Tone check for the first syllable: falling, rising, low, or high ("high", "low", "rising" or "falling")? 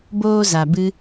high